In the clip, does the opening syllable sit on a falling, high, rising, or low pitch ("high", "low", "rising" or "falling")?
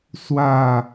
falling